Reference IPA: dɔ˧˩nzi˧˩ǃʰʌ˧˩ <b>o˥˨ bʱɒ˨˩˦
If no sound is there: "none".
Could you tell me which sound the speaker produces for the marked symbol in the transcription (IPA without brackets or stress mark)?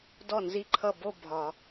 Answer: b